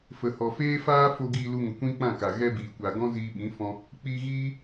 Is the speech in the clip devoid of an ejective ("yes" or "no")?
yes